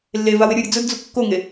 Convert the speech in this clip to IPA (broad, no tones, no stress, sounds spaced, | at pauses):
lː e v a w ɪ ɾʲ ʊ ɾʲ ʊ d͡z ʊ d d͡z u kː o ŋ e